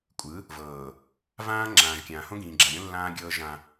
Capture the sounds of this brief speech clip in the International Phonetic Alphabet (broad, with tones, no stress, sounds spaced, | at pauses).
kʷʼ ɯ˨˦ | v ɤː˨ | v ãː˦ ŋ͡ǁ ãː˨ ʒ kʲ ãː˨ h õ˦ ɡ ĩː˨ ɡ͡ǁ a˨ ɾʲ õ˦ lː ãː˦ ɡʲ ɤː˦ ʒ ã˦